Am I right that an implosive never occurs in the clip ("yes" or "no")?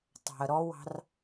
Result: yes